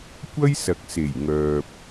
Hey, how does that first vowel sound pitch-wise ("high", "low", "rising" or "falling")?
high